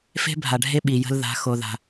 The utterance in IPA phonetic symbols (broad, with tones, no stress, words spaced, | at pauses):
fe̤˦bʱa˨ɖʱe˦ ɓi˨jə̤˦l ða̤˨˦ xo˨ða̤˨